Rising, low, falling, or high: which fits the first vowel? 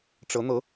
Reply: rising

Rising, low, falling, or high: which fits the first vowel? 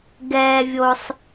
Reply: low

